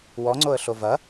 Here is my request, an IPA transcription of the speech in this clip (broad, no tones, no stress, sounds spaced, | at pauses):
w ɔ ŋ͡ǀ o ə̯ ɬ o v ɐ